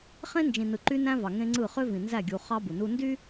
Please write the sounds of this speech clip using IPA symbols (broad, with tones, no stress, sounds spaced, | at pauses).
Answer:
χ ẽ˦ n d͡ʒ ĩ˨ n ɯ˨ ǃ y˦ n æ̃˦ v ɑ˨ ŋ ẽ˦ ŋ͡ǀ ɯ˦˨ χ ø˦ v ĩ˨ n z æ˦˨ ɡʲ u˨ χ ɑ˦ b u˨ n u˦ n d y˦